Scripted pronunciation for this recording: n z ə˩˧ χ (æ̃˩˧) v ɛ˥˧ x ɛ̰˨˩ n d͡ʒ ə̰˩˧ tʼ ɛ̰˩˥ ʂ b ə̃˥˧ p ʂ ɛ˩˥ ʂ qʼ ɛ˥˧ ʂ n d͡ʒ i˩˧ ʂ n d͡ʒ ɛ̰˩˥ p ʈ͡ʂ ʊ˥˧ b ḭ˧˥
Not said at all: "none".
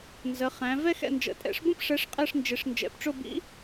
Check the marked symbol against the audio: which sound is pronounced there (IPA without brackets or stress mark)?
æ̃˩˧